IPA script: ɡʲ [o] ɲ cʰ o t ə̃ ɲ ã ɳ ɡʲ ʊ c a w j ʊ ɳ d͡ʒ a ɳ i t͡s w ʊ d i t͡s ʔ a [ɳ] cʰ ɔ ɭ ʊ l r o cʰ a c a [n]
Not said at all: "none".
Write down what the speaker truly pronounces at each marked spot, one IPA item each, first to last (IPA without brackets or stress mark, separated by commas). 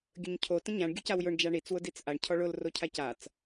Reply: ɵ, ɳ, t͡s